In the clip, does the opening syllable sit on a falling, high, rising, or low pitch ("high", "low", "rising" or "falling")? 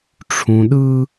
low